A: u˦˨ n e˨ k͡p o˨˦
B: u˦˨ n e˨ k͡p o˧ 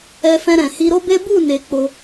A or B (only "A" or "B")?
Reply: B